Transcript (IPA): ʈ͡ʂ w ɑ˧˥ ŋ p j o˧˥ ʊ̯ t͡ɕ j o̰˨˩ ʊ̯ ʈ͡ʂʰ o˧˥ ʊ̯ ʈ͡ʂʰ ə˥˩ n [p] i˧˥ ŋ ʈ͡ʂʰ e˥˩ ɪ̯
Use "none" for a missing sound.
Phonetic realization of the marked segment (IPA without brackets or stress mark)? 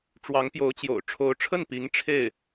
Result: p